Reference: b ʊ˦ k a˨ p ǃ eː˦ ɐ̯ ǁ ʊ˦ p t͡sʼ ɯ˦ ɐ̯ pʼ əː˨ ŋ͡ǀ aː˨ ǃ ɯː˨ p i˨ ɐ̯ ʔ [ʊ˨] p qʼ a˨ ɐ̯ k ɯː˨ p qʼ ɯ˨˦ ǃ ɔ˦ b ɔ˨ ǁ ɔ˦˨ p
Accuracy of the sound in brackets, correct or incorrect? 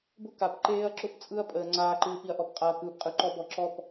incorrect